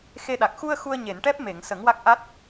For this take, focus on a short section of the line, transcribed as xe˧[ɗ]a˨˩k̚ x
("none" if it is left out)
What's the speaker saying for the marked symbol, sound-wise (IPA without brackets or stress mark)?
ɗ